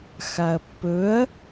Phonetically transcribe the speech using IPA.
x a ɐ̯ pː ɵ ɐ̯

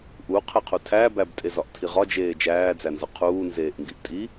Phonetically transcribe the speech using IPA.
ʔ u qʰ e qʰ u tʰ æ b æ b tʼ e z ɒ ʔ tʰ i ʁ ɒ d͡ʒ eː d͡ʒ æː d͡z æ n z ɒ qʰ uː n z eː ʔ ŋ ɡ i ʔ tʼ i

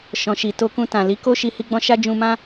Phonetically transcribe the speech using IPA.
ʃ ɔ̃˨ ʃ i˨ t o˧ k ũ˧ t ã˨ l i˨˦ k o˦ ʃ i˧ h i˦ ɡ͡b ɔ̃˦ ʃ a˦ d͡ʒ ũ˧ m ã˦

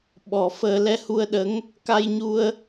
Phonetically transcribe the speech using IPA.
ɓ ɔ˨˩˦ f əː˧ l ɛ˧ h u˧ ə̯ ɗ ə˧˥ ŋ | k a˧ j ɲ u˧ ə̯

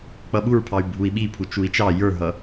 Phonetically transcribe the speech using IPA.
k͡p ʌ ɓ u ɹ pʰ ɑ y̯ bʱ u i̯ ɓ i pʰ u t͡ʃ u i̯ t͡ʃ ɑ j ə˞ ɦ ʌ

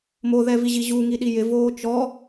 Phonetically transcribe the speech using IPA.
m o ð ɛ v i ʑ i ʑ u ŋ i ɗ i j ɪ v oː t͡ʃ ɔ

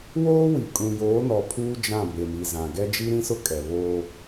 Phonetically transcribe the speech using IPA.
w oː˦ w i˨ kʼ ũ˨ j oː˨˦ n ɔ˨ pʰ uː˦ d͡ʒ ã˦˨ b e˨ m i˨ z ã˨ ɡ ɛ˦ d͡ʒ i˦ ɾ ĩ˦ s ʊ˦ kʼ ɛ˨ β oː˦

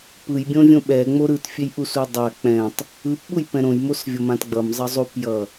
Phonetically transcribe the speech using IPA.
p ɯ j bʲ õ vʲ õ ɓ ɛ ŋ͡m o ɾ ɯ t fʲ e j ʔ u s u dˤ a k͡p ɛ̃ tˤ | ɯ p ɓ u j p ɛ̃ ɾ õ j m o s vʲ ʌ m ã t ɡ͡b ʌ m zˤ ʌ zˤ u p j ʌ

